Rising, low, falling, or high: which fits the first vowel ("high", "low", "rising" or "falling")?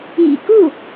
low